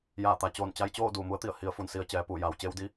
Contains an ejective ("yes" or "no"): no